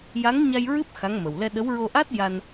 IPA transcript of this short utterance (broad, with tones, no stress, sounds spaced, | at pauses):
j a˧˥ ŋ ɲ a˧ j ɹ ɨ˦˥ p̚ x a˧˥ ŋ m ə˨˩ w l ɛ˧ ɗ ə˧˥ w ɹ o˧ ʔ a˦˥ t̚ j a˧ n